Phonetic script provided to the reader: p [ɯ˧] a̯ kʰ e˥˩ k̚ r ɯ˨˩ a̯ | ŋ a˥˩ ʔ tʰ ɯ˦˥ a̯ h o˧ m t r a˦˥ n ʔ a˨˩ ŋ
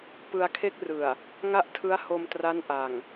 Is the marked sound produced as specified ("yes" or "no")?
yes